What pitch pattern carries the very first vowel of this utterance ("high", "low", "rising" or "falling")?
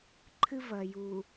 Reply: high